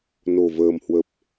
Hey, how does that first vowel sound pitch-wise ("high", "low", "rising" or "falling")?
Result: low